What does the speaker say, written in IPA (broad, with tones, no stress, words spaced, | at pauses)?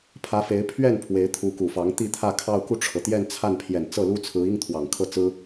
pʰä˧˥fe˧˥ɪ̯pʰɥɛ˥˩n pʰwe˧˥ɪ̯t̪ʰu˧˥ku˨˩fɑ˧˥ŋ t̪i˥˧t̪ʰä˥˧kʰɑ˥˧ʊ̯ ku˥˩ʈ͡ʂʰɤ˩t̪jɛ˥˧nt͡sʰa˥˩n pʰjɛ˨˩n t͡sɤ˥˩lu˥t͡sʰɹ̩˧˥i˥ŋ t̪ʰwɑ˨˩ŋkʰɤ˥˩t͡sɹ̩˥